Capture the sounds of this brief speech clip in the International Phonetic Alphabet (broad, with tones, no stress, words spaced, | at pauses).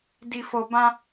di˨fo˨bã˧